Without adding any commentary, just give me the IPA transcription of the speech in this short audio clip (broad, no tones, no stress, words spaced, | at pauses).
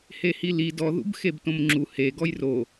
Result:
hehili dɔ ðṵbxebtõmŋ͡ǁu he ɡɔjro